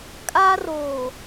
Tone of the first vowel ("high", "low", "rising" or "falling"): high